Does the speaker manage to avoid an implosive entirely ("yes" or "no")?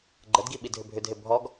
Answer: no